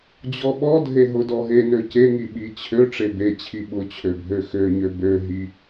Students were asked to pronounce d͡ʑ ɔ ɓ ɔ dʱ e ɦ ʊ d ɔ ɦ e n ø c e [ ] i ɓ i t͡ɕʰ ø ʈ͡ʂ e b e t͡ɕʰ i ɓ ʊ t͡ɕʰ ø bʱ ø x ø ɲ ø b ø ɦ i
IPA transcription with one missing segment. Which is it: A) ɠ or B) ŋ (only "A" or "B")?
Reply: B